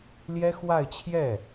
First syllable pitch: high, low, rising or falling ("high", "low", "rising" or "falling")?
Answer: high